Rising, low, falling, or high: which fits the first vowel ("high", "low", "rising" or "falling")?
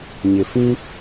low